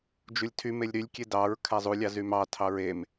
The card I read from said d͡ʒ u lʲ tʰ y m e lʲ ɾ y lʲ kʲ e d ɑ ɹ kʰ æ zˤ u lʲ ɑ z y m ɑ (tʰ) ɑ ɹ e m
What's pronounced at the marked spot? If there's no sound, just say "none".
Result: tʰ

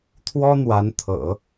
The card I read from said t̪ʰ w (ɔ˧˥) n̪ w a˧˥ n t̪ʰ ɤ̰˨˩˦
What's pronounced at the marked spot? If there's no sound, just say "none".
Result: ɔ˥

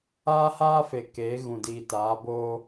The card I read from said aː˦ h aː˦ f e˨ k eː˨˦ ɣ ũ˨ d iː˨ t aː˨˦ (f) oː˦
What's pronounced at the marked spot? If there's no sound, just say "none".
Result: b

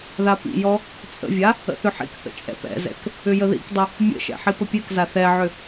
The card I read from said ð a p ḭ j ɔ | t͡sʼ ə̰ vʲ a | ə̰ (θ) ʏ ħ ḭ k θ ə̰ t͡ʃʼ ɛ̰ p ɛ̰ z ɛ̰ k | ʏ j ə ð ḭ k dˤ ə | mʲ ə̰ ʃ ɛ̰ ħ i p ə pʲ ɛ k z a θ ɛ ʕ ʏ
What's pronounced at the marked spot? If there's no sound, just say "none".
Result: θ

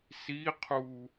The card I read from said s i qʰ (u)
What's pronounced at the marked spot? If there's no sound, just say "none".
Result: u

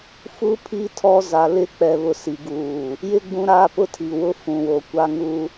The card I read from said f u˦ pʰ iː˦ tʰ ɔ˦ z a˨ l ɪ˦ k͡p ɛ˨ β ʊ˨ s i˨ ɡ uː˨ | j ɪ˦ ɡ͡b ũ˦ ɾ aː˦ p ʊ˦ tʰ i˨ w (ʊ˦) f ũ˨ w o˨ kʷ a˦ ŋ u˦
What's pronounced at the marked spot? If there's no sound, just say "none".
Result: ʊ˦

